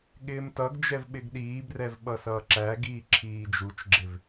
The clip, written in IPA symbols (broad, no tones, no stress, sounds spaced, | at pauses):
ɠ ɪː m t ʌ ɡ d͡ʒ ɛ v ɓ ɪ ɡ ɗ iː b r ɛ v ɓ ʌ s ʌː ǁ æ ɡ iː ǁʰ iː d͡ʒ u t͡ʃ ɡ͡ǁ ɪ v